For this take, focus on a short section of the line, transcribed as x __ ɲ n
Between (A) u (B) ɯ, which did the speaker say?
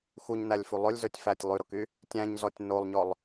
A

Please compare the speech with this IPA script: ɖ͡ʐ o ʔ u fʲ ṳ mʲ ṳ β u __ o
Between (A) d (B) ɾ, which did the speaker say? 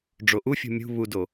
A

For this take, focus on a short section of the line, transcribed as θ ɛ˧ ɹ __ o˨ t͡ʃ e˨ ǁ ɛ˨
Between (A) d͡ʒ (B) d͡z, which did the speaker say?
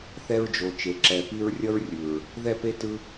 A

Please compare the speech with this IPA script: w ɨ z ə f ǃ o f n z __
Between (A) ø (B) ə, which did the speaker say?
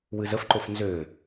A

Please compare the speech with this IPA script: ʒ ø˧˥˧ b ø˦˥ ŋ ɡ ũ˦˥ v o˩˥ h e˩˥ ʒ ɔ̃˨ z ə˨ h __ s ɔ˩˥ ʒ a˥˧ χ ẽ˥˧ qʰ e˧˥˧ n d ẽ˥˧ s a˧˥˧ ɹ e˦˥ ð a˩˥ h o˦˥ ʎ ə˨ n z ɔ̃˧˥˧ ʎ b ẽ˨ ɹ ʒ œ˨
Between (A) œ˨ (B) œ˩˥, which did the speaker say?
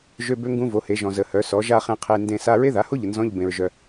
B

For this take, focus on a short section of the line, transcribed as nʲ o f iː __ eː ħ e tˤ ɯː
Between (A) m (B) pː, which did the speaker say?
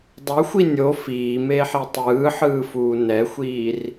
A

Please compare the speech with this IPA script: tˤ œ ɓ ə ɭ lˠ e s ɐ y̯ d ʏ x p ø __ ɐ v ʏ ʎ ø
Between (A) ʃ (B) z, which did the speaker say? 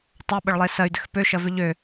A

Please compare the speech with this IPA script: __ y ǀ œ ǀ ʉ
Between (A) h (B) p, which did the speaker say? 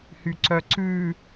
A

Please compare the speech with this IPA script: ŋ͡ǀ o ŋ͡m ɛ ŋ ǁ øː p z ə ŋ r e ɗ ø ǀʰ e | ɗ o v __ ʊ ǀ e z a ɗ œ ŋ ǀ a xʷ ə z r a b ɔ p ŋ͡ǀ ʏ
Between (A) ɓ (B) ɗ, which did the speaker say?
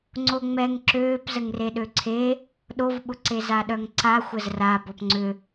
A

